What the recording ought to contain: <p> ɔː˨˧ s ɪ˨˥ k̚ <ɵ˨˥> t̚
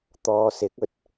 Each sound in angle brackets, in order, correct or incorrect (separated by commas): incorrect, incorrect